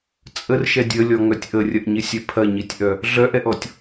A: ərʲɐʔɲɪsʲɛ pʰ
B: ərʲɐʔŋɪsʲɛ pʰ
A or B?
A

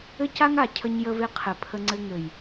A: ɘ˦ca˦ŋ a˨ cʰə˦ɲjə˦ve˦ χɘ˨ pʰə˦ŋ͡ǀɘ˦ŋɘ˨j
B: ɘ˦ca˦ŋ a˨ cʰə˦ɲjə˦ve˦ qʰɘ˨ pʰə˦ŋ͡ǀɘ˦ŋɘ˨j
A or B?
B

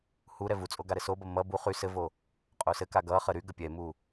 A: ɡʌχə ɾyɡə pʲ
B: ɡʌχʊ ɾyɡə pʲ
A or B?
A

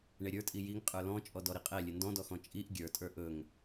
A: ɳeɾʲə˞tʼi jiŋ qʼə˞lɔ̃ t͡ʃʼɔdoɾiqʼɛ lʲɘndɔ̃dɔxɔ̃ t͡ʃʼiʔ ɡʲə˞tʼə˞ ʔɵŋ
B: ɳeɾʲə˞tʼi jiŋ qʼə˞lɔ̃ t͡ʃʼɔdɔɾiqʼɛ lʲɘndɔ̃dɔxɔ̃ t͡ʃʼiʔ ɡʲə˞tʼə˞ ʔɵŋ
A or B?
B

